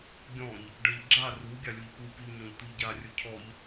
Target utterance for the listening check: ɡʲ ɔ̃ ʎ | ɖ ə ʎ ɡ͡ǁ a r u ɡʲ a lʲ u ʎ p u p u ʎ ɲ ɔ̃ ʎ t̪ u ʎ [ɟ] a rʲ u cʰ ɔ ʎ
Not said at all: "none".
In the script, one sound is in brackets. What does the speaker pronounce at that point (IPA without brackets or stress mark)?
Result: ɟ